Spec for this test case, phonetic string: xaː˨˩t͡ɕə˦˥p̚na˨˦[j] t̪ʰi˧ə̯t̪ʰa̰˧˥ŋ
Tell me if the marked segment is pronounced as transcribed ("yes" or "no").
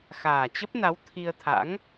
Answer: no